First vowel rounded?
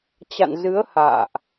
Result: no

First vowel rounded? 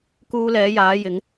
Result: yes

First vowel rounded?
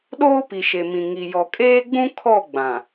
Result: yes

